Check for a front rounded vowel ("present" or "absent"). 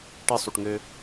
present